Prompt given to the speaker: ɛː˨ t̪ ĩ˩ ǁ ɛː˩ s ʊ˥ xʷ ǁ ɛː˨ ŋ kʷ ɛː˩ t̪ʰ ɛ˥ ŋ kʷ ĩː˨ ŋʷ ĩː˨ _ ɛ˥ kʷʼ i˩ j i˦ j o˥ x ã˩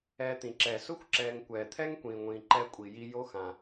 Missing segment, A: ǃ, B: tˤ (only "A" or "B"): A